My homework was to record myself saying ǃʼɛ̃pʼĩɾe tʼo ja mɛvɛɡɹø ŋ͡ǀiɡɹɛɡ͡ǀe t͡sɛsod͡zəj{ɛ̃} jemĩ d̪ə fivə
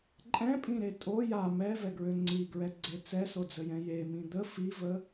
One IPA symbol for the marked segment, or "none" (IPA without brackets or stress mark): ɛ̃